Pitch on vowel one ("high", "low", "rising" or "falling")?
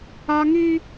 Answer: high